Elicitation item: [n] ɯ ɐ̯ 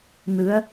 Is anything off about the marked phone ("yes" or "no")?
no